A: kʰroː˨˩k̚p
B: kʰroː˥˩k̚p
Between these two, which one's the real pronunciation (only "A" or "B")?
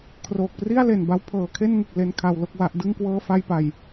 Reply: A